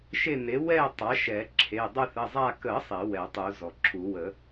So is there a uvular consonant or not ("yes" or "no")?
no